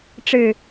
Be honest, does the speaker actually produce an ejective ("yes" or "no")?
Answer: no